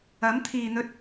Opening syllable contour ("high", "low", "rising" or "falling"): rising